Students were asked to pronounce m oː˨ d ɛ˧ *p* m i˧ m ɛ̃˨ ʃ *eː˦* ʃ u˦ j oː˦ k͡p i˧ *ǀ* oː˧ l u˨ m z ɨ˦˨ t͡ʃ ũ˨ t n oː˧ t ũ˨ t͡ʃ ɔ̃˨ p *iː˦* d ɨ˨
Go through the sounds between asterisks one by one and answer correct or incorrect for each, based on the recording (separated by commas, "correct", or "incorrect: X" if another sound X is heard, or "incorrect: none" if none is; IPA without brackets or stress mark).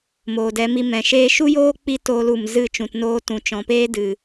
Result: incorrect: none, correct, incorrect: t, incorrect: eː˦